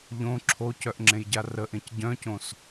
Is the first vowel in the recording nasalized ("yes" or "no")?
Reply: yes